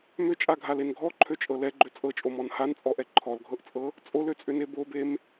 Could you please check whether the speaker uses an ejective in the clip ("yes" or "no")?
yes